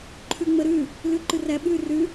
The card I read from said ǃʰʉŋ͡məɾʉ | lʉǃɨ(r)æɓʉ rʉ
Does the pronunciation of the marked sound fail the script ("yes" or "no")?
no